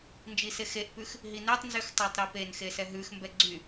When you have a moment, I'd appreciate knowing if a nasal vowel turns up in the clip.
no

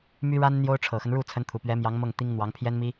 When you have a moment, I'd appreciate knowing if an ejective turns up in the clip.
no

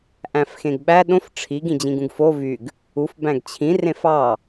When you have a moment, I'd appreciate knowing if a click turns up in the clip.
no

